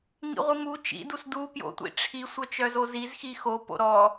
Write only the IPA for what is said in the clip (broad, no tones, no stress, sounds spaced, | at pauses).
ŋ ḭ ʁʷ i m u t͡ʃ ḭ d u s d u p j o̰ tʷ ḭ ʈ͡ʂʰ i sʷ œ t͡ʃ œ z o z i z x i x o p o̰ ɾ ɔ